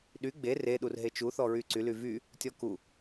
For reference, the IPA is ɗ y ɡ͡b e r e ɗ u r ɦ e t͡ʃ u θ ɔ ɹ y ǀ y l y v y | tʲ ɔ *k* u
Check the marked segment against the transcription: correct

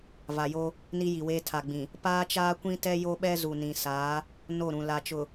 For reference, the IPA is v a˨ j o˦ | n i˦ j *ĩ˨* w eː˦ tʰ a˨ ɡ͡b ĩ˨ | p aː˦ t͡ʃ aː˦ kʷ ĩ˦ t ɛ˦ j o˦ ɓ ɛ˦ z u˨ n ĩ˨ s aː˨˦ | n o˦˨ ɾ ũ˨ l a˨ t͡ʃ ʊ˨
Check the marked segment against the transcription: incorrect: i˨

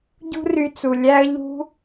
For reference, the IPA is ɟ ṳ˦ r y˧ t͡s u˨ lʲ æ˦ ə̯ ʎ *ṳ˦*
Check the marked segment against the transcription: correct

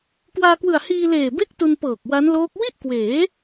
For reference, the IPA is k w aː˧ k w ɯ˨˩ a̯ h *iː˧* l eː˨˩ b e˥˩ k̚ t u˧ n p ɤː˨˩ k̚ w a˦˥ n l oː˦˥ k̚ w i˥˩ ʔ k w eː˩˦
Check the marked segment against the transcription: correct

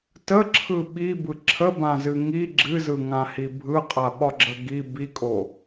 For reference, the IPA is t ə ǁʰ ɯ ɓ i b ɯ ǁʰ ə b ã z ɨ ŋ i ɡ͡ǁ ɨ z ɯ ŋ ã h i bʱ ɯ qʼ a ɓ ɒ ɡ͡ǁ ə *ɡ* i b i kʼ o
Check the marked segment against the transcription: correct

